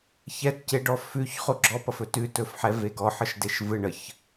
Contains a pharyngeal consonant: yes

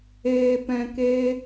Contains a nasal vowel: yes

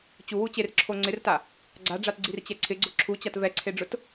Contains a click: yes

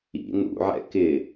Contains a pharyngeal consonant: yes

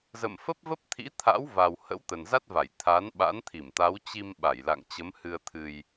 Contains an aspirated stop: yes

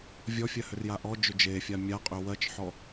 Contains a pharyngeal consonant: yes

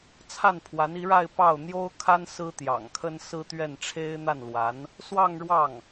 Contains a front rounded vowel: no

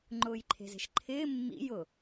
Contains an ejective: no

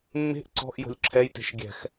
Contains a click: yes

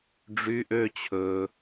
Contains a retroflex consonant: yes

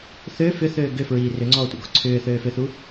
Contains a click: yes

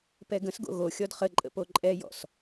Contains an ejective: yes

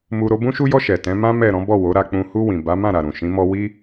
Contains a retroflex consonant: no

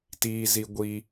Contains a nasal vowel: no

